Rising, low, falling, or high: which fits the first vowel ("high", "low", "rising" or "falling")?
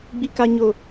high